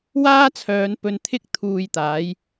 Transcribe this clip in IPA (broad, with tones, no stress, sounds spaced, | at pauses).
w aː˥ t͡sʰ œː˨˧ n p ɵ˧ n t̪ʰ ɪ˥ k̚ t̪ʰ uː˧ j t̪ aː˨˥ j